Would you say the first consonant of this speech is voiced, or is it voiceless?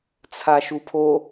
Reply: voiceless